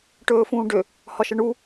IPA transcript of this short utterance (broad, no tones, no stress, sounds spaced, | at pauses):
ʈ ɵː f ũː ɖ ø | h ɒ ʃ ə ɳ u